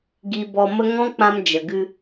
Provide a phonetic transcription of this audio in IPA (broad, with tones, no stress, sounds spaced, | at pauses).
ɡ i˧ b ɔ˧ m ə˦ ŋ ɔ̃˦ k͡p ã˧ m d͡ʒ ə˨ ɡ ɨ˧